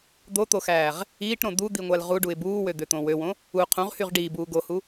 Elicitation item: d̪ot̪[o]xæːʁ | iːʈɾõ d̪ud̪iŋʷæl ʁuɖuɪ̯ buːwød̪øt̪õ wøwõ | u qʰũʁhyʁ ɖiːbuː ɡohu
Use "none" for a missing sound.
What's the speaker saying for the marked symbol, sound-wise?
o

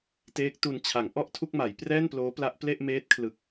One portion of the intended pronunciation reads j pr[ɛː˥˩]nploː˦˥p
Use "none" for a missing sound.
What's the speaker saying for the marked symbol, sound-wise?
ɛː˥˩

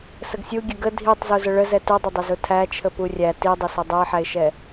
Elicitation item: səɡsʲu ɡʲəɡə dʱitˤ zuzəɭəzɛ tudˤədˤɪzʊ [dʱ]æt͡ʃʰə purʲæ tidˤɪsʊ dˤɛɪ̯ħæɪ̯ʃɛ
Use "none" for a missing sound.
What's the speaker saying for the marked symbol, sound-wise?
tʰ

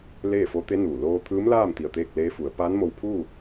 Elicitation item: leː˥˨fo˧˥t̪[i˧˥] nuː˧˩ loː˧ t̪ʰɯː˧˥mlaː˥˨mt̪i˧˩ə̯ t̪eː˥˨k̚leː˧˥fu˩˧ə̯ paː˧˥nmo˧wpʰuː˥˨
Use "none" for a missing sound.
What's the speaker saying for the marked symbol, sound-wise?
e˧˥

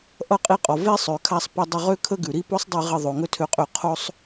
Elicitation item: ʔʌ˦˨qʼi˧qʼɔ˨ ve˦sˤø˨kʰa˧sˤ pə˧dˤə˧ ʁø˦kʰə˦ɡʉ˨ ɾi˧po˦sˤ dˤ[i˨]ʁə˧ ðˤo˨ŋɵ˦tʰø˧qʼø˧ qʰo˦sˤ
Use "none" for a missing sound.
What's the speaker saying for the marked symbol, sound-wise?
i˧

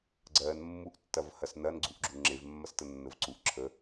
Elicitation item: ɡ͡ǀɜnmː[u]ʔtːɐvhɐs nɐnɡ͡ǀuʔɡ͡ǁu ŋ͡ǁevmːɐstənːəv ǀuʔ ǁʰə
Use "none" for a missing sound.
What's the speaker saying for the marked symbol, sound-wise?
u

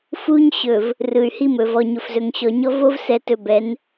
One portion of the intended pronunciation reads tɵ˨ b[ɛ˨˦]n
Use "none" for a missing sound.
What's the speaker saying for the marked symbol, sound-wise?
ɛ˨˦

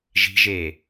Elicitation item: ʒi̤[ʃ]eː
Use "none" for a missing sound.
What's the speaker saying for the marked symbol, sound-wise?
ʒ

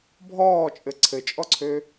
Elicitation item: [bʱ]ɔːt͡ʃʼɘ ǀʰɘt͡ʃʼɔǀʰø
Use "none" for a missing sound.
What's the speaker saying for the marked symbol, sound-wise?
bʱ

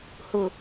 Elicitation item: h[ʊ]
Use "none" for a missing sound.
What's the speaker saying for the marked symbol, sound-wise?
ʊ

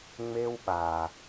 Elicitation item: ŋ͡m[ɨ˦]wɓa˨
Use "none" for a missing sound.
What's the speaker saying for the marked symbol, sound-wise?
e˦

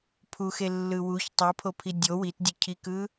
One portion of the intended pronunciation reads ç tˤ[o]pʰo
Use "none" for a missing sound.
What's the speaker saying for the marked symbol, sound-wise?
u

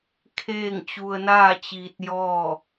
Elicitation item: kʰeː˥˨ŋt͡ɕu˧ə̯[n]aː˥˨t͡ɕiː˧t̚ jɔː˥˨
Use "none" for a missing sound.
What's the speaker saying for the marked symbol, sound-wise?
n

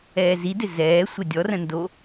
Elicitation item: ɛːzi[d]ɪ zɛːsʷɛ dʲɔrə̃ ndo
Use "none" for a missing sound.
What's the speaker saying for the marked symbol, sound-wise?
d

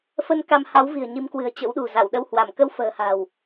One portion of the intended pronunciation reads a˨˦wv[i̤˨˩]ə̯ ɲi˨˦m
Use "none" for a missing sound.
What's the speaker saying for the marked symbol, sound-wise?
i̤˨˩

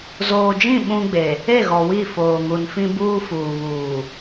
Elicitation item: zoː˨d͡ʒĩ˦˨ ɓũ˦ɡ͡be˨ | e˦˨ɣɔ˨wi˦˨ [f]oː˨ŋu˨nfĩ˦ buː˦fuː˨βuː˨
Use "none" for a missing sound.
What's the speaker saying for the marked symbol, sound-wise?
f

